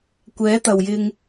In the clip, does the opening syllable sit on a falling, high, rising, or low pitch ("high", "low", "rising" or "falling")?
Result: rising